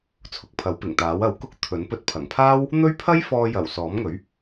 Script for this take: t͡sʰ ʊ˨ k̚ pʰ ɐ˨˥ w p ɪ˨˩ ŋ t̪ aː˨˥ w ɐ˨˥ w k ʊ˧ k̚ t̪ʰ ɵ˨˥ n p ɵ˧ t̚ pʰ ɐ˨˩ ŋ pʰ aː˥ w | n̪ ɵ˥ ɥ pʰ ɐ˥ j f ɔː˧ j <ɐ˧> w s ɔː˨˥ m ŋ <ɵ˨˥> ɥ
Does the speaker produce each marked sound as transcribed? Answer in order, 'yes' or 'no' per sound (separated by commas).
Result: no, yes